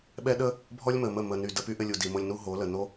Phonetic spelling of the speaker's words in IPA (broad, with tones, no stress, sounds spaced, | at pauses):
ɓ ɛ˦ ɗ ə˦ | bʱ ɔ˦ lʲ m ə˨ m ə˦˨ m ə˨ n y˨ d ə˧ p y˦ ʔ ɘ˧ lʲ u˨ d i˨ m o˧ lʲ n u˦ ɦ o˨˦ l ə˨ n o˦